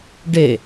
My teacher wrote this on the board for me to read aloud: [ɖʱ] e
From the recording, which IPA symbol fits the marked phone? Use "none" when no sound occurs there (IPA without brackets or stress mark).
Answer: ɖ